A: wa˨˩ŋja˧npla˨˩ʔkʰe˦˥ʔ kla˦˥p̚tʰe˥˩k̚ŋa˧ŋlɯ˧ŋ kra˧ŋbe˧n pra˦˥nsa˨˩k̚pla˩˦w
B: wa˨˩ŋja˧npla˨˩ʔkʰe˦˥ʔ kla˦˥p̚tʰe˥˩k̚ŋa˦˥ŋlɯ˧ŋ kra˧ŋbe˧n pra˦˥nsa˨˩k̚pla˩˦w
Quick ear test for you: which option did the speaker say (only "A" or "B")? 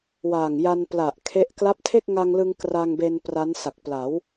A